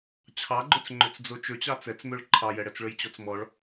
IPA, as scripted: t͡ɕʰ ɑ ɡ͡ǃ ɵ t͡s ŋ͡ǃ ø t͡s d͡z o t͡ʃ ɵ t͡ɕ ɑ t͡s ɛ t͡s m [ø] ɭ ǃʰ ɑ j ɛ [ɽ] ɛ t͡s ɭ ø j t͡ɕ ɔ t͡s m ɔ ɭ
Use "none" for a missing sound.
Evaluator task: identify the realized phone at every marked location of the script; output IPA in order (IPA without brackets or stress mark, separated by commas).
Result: ø, ɽ